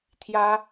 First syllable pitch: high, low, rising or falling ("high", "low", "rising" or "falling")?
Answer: high